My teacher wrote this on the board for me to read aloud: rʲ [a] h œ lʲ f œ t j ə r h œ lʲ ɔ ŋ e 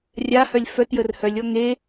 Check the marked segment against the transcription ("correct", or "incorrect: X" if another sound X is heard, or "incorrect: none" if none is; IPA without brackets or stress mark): correct